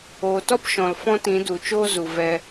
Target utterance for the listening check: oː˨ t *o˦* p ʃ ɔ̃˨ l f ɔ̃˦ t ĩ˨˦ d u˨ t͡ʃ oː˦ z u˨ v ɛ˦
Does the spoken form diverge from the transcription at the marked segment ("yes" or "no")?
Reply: yes